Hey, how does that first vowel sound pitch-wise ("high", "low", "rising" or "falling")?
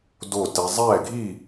falling